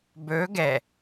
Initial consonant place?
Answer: labial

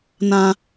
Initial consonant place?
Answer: alveolar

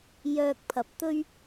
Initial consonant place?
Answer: palatal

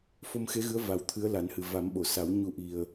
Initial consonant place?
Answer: labial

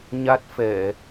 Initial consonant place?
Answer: palatal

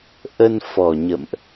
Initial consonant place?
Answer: glottal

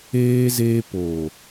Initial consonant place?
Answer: alveolar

